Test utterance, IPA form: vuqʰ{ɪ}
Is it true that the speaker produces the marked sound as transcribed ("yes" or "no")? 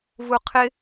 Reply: yes